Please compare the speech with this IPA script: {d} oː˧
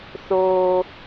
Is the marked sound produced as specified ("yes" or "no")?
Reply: no